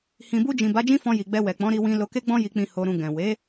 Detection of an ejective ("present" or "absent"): absent